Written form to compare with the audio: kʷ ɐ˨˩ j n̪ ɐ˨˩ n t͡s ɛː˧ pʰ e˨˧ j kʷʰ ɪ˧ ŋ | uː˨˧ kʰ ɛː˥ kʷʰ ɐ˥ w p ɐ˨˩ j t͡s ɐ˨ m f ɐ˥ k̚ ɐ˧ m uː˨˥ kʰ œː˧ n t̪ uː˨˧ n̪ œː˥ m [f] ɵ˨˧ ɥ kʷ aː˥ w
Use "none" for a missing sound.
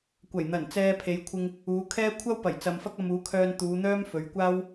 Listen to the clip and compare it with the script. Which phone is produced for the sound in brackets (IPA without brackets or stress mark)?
f